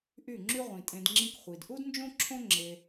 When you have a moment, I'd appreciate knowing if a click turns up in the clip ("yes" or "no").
yes